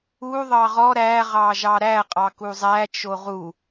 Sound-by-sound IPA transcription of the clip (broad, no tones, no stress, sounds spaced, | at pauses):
u ðˤ ɑ ʁ ɔ ɾ æ ʁ ɑ ʒ ɑ ɾ æ qʼ ɑ k u zˤ æ t͡ʃ o ʁ u